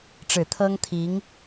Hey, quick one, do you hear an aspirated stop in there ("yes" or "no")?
yes